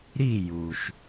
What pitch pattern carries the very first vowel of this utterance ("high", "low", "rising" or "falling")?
falling